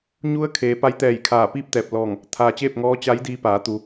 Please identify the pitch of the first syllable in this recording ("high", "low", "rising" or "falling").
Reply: rising